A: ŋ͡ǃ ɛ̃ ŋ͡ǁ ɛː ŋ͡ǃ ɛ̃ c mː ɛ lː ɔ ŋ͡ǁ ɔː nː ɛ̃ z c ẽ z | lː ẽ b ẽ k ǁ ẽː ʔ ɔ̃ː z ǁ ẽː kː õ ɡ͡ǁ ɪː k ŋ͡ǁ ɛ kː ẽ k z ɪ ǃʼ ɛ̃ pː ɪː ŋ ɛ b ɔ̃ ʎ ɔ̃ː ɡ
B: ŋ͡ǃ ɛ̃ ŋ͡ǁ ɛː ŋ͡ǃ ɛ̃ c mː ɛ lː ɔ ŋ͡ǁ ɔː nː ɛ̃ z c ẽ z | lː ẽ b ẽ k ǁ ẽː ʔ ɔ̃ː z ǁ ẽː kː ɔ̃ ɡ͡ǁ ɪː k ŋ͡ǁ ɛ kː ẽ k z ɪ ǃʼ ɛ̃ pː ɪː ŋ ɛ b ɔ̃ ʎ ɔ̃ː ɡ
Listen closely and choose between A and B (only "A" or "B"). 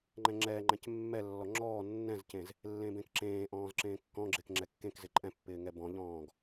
B